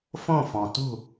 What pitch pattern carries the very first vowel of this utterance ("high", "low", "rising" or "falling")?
falling